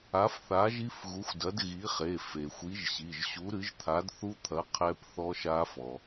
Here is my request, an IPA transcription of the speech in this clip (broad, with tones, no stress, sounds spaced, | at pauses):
a˨˥ f θ a˨˥ ʒ i˦˥ f ɣ u˨˥ xʷ d ɐ˨˥ d ɣ i˨˥ χ e˩˧˩ f e˩ xʷ i˨˥ ʒ ɕ i˩˧˩ ʒ ɕ u˨˥ ɾ ɨ˨˥ ʒ t̪ʰ a˨˥ d θ u˦˥ t̪ʰ ɐ˨˥ qʰ ɛ˦˥ p θ ɔ˦˥ ʃ a˦˥ f ɔ˩